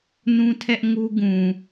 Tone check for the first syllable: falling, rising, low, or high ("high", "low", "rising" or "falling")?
high